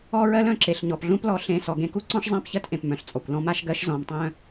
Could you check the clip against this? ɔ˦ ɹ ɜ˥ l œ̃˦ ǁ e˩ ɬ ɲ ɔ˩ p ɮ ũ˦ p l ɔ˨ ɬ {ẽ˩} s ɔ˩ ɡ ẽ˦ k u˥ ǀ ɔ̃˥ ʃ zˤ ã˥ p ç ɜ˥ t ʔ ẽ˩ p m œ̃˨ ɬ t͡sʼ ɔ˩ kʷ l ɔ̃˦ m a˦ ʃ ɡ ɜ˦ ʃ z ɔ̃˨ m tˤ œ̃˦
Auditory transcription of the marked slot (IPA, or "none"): ẽ˨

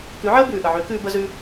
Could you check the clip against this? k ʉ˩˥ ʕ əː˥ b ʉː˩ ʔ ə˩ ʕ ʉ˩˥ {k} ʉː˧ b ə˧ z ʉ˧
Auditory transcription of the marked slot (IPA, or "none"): k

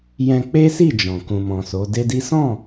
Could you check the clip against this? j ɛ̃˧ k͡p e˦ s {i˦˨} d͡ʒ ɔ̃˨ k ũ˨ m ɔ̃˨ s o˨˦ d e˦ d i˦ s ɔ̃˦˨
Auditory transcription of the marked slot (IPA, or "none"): i˦˨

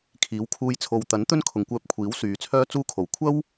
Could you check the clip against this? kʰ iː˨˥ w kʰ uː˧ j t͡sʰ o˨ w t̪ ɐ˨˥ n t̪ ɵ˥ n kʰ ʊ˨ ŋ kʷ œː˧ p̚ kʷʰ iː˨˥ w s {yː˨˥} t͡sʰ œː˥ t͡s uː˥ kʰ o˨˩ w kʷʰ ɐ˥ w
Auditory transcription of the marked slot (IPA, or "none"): yː˨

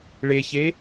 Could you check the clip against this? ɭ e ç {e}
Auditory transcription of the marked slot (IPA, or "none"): e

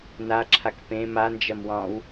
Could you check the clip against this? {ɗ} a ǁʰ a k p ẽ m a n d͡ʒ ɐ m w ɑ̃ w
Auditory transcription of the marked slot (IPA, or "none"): n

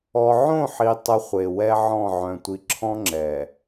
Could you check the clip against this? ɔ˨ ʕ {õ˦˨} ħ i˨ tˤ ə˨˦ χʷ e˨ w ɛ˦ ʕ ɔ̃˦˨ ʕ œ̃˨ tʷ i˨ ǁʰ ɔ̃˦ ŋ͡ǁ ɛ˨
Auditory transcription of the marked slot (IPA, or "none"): õ˦˨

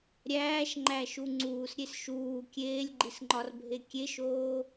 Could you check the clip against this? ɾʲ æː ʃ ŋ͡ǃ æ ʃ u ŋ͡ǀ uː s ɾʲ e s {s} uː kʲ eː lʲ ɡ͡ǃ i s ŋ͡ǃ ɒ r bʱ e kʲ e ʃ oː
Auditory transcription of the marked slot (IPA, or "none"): ʃ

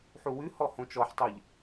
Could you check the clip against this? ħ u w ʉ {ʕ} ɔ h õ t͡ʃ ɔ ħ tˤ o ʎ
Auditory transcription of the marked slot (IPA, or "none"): h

